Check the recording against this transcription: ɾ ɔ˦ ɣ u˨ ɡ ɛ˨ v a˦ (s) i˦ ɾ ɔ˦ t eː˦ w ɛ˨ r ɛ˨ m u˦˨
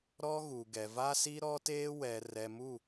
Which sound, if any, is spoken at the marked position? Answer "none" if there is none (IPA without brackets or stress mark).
s